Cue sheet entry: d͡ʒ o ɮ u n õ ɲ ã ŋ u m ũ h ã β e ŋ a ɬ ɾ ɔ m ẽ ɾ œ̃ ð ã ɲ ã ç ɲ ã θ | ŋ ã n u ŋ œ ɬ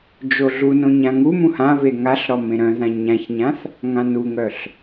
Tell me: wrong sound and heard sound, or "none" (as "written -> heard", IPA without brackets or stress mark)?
none